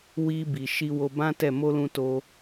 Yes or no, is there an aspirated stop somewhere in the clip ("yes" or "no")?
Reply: no